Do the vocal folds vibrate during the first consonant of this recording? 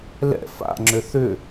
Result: yes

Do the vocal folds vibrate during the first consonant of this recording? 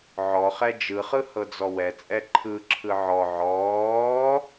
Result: yes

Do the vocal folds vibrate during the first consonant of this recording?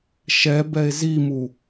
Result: no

